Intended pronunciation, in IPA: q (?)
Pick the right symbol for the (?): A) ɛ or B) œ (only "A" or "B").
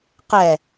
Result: A